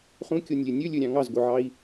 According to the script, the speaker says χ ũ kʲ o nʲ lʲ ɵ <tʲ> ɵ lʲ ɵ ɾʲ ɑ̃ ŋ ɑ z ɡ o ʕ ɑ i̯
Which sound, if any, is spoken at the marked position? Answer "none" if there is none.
nʲ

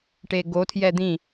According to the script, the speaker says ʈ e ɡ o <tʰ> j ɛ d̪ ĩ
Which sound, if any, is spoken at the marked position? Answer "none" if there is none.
tʰ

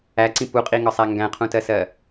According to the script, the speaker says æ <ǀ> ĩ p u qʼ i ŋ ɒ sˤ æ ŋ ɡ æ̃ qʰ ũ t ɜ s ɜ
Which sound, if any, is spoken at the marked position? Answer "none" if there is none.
ǀ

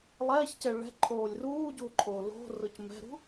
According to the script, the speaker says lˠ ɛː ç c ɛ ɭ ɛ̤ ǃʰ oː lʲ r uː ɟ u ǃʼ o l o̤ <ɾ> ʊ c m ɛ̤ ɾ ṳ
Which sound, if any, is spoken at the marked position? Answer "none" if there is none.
r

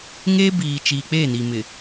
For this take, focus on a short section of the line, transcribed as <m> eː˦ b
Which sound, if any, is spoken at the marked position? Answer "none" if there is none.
ŋ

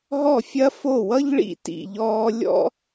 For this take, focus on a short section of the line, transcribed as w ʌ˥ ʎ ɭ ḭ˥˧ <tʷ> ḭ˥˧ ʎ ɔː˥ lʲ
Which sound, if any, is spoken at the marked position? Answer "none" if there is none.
t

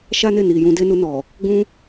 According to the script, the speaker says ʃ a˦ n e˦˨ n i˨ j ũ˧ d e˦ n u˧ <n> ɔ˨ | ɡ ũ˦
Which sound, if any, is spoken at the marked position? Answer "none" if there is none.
n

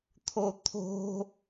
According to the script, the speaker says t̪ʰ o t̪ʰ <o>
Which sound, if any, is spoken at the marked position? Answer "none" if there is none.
o̤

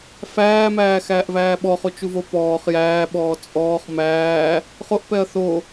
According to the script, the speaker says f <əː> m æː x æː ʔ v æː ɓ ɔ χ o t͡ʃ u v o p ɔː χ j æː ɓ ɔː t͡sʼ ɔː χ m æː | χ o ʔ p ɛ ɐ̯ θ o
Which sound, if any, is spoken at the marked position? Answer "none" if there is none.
æː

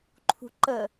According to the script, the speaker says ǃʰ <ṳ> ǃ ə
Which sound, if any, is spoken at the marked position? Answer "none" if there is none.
ṳ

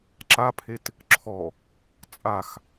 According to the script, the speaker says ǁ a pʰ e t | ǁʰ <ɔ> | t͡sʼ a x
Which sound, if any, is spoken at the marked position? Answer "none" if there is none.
ɔ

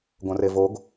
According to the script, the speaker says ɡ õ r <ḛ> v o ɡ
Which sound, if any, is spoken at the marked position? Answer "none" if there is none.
e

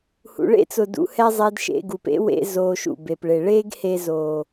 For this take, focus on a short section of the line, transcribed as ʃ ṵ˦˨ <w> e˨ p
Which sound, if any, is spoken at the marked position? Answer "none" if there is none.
b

